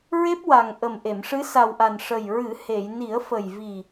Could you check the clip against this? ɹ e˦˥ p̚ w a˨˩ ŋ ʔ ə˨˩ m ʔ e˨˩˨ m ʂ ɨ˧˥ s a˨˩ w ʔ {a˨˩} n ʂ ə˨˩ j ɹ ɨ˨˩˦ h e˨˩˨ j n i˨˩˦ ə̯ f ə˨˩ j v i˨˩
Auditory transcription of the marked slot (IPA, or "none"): a˨˩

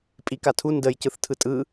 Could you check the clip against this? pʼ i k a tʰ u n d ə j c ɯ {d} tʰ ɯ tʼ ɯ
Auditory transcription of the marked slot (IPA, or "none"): θ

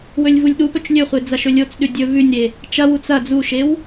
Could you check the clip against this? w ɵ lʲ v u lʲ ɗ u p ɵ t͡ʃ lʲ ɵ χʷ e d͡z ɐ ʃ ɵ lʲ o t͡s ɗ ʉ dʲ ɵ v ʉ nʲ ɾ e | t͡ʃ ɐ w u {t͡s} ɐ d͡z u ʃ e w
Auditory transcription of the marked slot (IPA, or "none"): t͡s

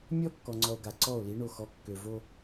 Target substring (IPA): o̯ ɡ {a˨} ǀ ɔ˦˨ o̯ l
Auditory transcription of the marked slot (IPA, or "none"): a˨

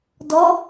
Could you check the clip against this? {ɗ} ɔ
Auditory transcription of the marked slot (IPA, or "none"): d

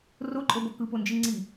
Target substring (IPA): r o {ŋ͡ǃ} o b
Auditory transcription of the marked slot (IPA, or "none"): ǃʼ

